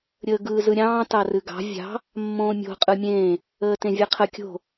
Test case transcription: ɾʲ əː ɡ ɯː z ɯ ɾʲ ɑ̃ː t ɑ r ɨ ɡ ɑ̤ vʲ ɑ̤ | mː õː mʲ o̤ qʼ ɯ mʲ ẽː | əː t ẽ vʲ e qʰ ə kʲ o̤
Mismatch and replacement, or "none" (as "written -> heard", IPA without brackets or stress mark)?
none